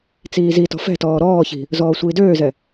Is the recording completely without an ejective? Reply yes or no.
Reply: yes